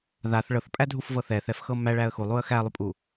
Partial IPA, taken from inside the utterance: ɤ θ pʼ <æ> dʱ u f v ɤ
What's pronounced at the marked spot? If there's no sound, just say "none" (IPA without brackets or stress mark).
æ